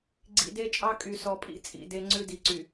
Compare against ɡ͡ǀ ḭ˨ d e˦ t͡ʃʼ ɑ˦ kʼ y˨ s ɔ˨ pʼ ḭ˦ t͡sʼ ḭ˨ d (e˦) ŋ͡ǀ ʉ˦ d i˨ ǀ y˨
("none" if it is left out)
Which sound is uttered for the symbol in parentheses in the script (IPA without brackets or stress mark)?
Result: e˦